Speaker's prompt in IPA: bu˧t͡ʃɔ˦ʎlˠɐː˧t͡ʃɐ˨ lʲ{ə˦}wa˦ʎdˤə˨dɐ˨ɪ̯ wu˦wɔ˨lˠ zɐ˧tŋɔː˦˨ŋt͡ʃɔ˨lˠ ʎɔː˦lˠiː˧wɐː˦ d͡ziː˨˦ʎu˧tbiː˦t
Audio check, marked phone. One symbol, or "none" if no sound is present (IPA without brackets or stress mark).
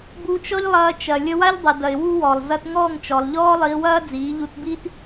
ə˧